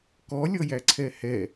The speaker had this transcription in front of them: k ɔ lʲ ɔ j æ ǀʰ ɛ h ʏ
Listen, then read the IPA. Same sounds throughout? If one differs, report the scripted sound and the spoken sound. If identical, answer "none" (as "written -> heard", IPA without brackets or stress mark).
ʏ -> ɛ